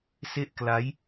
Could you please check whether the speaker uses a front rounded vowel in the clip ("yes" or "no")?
no